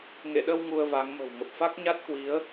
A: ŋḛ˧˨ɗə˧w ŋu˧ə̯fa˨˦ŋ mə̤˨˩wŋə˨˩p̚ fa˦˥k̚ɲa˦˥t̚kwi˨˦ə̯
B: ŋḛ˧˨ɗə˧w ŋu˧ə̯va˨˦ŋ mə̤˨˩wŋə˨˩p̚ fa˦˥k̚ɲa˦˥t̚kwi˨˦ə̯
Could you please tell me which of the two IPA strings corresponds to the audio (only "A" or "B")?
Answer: B